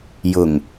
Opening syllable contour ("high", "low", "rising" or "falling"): low